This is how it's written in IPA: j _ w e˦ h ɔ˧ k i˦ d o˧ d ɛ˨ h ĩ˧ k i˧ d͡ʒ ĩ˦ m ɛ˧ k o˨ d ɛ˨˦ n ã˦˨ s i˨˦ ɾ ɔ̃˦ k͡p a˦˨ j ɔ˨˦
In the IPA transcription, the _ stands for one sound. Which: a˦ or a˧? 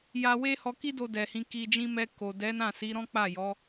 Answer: a˧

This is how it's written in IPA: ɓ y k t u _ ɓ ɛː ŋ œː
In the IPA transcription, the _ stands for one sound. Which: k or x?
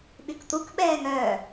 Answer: k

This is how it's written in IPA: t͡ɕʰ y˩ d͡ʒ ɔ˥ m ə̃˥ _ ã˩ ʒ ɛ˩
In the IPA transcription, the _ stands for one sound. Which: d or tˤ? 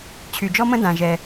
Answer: d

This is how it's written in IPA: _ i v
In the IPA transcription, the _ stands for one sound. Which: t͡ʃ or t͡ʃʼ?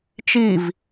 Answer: t͡ʃ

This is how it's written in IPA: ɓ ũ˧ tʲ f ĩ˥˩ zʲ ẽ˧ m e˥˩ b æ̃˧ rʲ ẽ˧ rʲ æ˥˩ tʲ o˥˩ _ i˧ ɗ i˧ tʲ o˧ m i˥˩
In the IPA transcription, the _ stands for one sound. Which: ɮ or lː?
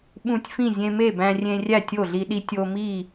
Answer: ɮ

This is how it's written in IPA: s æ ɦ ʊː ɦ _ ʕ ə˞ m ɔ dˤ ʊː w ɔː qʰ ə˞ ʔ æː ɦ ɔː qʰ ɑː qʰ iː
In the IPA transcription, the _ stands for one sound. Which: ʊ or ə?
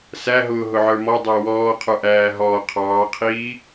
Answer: ʊ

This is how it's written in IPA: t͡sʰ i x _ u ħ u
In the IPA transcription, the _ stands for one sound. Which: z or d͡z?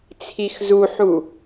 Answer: z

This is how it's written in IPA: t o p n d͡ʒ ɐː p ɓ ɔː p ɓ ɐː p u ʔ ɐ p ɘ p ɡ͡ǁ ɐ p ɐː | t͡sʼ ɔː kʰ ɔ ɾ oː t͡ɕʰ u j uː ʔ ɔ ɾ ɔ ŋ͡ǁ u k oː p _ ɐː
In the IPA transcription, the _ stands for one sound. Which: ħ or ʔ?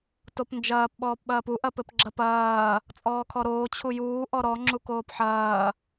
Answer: ħ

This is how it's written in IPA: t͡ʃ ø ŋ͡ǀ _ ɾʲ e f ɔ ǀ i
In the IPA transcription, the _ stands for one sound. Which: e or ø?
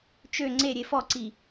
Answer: e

